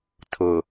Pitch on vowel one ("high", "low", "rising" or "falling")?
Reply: low